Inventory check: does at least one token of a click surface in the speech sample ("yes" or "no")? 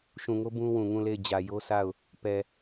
no